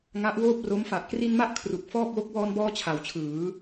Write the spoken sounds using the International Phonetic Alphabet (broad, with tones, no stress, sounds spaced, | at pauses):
ŋ a˦˥ ʔ w oː˥˩ p̚ r o˦˥ m f a˨˩ ʔ k r i˧ n m a˦˥ ʔ kʰ r u˨˩ k̚ f ɔː˥˩ k̚ w o˦˥ k̚ w ɔː˧ n b ɔː˧ t͡ɕʰ a˩˦ w t͡ɕʰ ɯː˩˦